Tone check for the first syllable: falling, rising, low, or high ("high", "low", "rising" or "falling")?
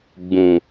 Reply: low